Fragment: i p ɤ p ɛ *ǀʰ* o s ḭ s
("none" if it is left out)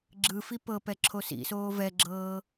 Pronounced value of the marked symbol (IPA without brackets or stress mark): ǁʰ